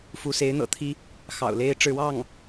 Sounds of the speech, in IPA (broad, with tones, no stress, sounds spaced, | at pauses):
f u˧˥ s e˧˥ ɪ̯ n̪ ɤ̰˨˩ t̪ʰ i˥ | x ɑ̰˨˩ ʊ̯ l e˥ ɪ̯ ʈ͡ʂ ɻ̩˥˧ w ɑ˥˩ ŋ